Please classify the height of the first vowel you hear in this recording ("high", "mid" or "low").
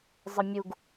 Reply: mid